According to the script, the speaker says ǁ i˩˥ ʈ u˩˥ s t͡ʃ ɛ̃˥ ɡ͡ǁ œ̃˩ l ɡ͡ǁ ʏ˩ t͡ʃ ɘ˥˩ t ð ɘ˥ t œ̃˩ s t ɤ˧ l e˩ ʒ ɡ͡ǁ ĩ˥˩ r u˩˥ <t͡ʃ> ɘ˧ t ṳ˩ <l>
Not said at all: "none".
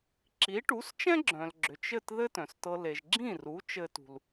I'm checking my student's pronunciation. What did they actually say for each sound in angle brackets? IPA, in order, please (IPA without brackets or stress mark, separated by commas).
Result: t͡ʃ, l